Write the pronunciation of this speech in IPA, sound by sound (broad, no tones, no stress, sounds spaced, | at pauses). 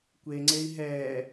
kʷ e ŋ͡ǀ e i̯ ɦ ɛː